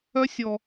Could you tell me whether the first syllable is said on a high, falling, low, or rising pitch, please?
high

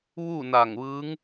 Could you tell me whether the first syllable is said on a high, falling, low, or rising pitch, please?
falling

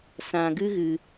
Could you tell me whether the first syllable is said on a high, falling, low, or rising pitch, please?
low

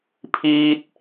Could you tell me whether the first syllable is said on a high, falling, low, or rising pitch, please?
high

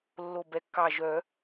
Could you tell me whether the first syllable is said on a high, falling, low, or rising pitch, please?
low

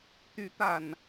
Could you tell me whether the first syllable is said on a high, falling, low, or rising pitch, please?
rising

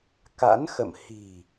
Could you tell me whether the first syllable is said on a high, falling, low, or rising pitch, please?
rising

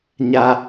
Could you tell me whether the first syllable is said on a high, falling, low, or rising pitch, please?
low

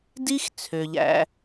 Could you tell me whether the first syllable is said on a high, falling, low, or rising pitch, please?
high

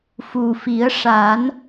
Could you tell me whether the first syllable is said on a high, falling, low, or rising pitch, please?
low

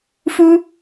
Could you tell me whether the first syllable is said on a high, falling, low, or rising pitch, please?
high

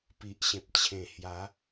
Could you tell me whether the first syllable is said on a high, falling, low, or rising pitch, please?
low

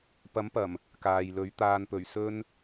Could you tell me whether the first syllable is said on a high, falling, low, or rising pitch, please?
rising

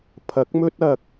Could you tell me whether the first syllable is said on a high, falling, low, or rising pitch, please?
rising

